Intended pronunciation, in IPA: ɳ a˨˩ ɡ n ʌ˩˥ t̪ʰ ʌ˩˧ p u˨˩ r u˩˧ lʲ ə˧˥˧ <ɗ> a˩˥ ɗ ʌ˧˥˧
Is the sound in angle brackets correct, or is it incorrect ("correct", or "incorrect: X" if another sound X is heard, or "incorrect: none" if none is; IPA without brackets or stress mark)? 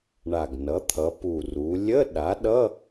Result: correct